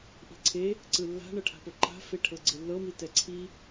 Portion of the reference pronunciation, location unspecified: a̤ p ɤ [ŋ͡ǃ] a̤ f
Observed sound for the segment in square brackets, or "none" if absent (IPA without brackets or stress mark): ǃ